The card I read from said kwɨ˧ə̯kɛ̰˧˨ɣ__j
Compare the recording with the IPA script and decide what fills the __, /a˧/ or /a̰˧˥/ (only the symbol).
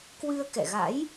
a̰˧˥